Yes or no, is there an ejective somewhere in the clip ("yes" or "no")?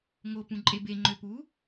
yes